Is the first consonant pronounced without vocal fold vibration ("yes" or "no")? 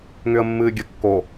no